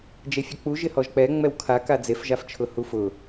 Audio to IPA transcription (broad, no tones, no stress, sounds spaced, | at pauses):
d͡ʒ e fʲ a k͡p u ʒ ɪ h ɔ ʒ k͡p ɛ ŋ͡m ɛ w kʰ a k a d͡z e f ʒ a f t͡ʃʰ ʊ h u f ʊ